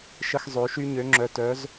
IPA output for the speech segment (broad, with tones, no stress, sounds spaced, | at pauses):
ʃ ə˧ x zˤ ø˩˧ ʃ y˧ ɲ ø˩˧ ŋ͡ǁ œ˩ t œ˩˧ z